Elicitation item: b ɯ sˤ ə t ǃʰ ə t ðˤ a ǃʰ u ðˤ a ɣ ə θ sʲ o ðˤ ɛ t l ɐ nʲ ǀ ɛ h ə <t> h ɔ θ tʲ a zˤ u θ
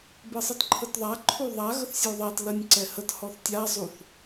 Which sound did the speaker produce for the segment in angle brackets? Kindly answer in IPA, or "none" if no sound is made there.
t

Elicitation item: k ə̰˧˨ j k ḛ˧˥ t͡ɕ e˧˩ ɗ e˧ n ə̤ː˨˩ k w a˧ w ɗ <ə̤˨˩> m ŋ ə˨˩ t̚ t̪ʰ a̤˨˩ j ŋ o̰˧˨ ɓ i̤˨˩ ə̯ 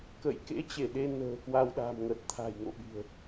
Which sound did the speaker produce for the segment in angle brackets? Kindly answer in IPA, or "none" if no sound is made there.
a̤˨˩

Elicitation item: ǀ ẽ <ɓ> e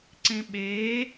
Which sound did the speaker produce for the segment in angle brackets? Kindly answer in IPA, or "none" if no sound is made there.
ɓ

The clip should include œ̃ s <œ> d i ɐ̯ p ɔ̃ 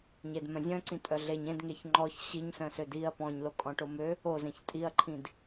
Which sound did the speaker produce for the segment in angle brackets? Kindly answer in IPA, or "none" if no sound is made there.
ø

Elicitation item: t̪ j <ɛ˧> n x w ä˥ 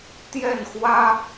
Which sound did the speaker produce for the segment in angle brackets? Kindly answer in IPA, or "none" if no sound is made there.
ɛ˥˩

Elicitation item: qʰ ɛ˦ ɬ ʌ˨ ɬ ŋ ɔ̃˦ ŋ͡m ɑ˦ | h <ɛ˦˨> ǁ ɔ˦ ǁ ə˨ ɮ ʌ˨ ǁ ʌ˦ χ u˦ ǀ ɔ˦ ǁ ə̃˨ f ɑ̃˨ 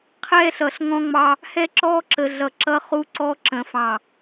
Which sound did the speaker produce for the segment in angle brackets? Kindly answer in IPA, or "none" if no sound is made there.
ɛ˦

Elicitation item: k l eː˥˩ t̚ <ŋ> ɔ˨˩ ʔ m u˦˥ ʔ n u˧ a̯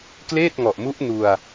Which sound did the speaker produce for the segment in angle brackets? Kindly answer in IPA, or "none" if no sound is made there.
ŋ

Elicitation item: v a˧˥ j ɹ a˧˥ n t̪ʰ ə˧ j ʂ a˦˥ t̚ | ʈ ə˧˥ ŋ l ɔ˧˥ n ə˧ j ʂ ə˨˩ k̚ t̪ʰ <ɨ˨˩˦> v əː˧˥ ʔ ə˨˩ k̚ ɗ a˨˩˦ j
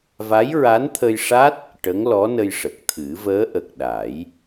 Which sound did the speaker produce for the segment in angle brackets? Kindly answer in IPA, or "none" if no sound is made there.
ɨ˨˩˦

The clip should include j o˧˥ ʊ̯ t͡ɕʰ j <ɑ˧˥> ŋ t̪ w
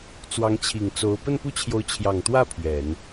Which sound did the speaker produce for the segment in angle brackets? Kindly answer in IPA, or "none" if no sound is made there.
ɑ˨˩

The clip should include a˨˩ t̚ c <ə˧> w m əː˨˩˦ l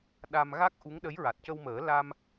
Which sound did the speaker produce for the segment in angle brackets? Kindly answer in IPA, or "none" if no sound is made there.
ə˧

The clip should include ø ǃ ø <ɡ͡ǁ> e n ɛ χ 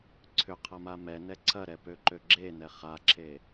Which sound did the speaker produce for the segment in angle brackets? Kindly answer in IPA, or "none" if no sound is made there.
ɡ͡ǁ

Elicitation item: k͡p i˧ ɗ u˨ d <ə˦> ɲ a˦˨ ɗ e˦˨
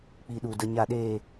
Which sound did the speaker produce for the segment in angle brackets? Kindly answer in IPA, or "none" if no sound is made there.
ə˧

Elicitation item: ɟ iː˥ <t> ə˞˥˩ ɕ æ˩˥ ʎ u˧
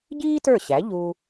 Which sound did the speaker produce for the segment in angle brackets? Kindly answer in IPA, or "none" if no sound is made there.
t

